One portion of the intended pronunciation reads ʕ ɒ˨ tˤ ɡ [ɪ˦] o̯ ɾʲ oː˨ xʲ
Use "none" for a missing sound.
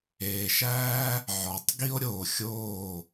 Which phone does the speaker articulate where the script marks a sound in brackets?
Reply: i˦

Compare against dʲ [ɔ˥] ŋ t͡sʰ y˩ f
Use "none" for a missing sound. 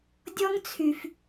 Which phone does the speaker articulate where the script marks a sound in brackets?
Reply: ɔ˥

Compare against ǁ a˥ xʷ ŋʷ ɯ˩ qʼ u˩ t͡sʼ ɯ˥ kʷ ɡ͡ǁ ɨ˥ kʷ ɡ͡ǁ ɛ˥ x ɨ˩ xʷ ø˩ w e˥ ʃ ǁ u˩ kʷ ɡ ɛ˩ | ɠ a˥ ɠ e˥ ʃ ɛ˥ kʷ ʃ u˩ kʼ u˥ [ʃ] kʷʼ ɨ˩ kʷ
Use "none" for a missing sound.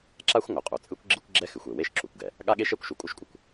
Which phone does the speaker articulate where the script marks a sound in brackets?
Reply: ʃ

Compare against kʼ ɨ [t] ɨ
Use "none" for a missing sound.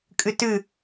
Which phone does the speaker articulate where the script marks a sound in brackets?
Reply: t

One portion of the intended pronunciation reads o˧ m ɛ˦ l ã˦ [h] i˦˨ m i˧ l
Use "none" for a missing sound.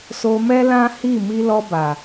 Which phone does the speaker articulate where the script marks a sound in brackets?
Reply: h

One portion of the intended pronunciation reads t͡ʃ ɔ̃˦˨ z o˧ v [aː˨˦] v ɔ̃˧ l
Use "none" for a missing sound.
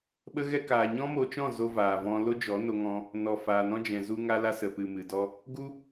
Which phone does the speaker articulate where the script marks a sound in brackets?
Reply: aː˨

